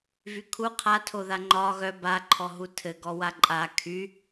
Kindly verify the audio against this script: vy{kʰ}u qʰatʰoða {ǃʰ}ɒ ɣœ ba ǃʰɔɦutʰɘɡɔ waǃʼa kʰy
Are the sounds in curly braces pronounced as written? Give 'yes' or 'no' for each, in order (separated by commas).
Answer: yes, no